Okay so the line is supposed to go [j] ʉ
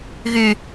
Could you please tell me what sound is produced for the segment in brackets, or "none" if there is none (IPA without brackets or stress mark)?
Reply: ɣ